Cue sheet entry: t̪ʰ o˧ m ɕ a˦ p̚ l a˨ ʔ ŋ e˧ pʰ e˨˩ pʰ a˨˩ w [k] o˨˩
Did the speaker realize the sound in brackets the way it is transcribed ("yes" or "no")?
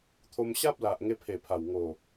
no